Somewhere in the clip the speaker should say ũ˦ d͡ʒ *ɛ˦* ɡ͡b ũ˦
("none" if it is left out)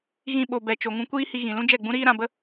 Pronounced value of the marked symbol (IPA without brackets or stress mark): ɛ˦˨